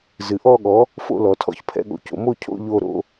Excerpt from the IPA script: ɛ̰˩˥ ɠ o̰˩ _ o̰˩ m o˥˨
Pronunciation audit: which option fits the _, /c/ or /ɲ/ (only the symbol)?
c